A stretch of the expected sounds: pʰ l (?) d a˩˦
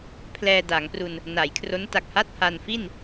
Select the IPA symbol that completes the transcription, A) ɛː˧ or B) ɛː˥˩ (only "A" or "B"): A